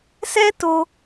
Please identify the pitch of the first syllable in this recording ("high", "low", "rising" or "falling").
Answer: high